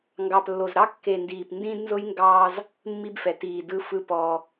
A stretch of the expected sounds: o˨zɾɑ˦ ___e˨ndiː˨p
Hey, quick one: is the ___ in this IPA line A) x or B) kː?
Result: B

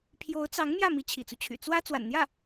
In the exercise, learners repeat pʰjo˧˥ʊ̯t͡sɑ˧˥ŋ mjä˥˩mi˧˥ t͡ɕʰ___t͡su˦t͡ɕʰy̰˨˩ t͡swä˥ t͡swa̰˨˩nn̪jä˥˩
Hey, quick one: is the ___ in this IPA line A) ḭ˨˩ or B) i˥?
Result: A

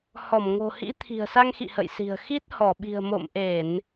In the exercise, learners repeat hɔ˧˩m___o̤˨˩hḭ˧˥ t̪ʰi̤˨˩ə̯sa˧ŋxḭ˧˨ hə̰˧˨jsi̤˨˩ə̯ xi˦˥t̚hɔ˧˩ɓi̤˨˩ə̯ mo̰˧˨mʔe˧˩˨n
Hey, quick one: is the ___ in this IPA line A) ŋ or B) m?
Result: A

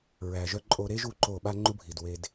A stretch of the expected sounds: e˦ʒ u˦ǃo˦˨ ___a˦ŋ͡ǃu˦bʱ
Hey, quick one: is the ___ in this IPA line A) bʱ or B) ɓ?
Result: B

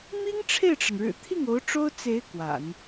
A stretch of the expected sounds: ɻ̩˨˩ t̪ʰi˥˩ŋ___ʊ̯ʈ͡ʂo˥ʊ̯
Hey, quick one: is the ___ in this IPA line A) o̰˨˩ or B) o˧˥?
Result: B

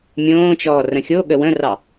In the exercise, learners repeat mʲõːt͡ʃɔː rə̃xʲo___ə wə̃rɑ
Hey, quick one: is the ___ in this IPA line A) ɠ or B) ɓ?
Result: A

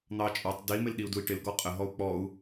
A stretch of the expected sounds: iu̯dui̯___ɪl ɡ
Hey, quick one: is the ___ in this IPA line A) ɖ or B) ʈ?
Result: B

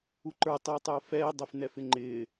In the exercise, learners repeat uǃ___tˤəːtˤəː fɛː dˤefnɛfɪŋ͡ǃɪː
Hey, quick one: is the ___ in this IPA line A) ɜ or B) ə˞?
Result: B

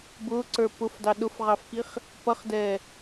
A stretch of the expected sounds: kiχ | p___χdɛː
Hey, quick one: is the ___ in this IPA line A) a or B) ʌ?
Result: B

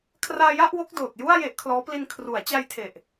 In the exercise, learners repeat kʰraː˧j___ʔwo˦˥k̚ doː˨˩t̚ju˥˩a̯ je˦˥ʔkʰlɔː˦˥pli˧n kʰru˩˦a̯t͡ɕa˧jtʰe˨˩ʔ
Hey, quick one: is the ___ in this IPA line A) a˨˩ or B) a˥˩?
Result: B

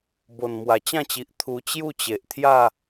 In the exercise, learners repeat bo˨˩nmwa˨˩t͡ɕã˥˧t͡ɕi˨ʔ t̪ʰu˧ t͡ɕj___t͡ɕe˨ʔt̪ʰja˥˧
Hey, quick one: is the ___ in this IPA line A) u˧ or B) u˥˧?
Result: B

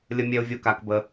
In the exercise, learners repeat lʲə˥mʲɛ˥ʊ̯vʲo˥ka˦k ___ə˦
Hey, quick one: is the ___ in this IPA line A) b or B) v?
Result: A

